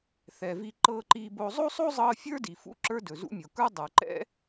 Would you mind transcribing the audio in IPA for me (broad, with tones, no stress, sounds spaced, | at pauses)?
θ ɛ˩ v i˧ ǃ ɤː˧ ǃ iː˧ b oː˧ zˤ o˥ sˤ o˥ zˤ ɤː˧ fʲ ə˞˥ d i˩ f ṵ˥ ǁ ə˞˥ d ɵ˩ z ṵ˥ mʲ o˩ k ə˞˥ dˤ ə˞˩ ǃ ɛ̰˥